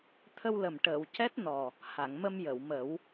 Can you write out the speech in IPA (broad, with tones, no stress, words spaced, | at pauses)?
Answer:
t̪ʰə˧wlə˨˩mʈəː˨˩˨w cɛ˦˥t̚nɔ˨˩ | ha˨˩˨ŋmə˧mjə˨˩˨wmə˨˩˦w